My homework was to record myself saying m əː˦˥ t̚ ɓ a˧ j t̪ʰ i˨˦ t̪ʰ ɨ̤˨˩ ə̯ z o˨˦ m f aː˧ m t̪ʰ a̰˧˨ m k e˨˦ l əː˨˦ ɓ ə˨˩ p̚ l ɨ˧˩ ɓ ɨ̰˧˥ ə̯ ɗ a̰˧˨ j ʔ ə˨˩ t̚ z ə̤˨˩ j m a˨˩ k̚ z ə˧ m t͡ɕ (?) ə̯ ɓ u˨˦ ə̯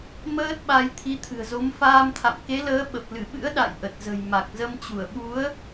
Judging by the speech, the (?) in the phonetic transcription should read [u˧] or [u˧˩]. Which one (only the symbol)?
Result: u˧˩